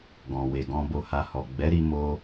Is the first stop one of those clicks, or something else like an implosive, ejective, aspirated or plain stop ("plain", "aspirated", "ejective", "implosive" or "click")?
plain